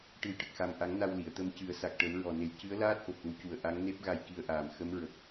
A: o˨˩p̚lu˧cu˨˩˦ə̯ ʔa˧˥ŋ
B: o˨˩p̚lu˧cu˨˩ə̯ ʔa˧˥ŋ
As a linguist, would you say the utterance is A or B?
B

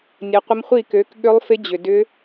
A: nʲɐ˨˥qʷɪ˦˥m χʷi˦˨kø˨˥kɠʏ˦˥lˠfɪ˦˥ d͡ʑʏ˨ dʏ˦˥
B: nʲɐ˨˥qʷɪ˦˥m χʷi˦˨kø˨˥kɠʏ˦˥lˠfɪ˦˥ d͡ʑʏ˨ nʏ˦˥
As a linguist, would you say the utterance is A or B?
A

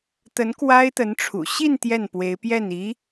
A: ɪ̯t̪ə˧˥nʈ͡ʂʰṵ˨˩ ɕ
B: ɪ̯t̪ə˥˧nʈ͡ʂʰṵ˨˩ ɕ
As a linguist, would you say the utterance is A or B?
A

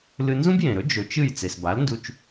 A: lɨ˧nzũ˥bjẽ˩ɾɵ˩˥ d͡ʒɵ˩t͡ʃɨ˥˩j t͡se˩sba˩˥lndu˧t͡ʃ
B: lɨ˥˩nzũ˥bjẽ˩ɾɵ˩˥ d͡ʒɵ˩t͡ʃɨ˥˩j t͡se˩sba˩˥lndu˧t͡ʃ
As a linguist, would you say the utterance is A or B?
A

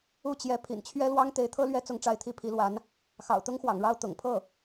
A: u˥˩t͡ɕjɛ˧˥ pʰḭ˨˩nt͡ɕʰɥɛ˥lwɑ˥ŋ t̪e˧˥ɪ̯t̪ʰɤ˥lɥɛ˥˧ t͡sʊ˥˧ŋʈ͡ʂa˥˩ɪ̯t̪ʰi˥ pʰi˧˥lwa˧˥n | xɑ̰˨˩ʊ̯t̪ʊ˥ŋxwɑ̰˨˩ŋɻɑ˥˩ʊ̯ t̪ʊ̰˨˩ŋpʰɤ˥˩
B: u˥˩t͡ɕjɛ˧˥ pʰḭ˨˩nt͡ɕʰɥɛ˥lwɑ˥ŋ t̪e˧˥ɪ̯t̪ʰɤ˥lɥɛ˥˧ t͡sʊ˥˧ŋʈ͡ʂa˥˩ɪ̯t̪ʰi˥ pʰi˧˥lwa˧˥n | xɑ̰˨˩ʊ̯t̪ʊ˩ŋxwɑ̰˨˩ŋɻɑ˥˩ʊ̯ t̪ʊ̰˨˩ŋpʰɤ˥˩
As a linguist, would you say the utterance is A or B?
A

